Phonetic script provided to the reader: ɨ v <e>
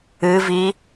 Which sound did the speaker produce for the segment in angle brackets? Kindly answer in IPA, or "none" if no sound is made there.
i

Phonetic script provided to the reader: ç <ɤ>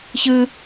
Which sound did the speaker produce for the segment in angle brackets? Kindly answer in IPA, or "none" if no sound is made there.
ɯ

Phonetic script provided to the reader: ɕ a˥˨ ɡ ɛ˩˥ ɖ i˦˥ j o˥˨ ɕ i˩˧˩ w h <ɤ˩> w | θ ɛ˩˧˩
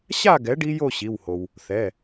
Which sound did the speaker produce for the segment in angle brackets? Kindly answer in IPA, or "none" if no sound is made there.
o˩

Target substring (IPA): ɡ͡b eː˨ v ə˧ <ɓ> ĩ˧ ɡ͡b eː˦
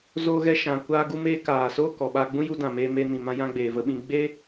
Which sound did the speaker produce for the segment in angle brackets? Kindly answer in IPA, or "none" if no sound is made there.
ɓ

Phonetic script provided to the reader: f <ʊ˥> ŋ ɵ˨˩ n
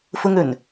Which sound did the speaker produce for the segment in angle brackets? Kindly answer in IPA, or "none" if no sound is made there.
ʊ˥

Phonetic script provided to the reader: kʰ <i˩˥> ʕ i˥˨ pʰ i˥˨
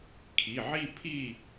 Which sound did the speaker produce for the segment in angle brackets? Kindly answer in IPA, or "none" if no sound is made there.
i˩˧˩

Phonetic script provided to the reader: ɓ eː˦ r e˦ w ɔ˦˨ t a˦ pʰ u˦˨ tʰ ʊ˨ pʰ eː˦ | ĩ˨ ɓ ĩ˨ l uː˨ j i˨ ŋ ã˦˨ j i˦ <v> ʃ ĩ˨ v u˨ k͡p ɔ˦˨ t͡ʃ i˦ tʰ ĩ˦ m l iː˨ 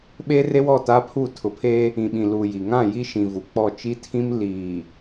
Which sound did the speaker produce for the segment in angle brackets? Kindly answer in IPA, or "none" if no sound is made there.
none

